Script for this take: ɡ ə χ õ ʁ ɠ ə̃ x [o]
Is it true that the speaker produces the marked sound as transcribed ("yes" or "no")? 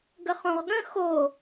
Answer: yes